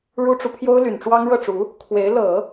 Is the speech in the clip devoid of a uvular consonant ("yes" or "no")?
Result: yes